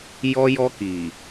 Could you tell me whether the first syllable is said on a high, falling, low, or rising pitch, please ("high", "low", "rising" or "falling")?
high